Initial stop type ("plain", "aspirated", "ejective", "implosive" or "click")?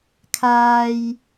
aspirated